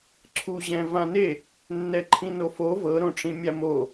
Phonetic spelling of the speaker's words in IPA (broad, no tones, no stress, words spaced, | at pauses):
ǀʰuʑɛ̃ vãne | nːɛǃʰĩnofo vɤɾõʈ͡ʂĩ mʲamo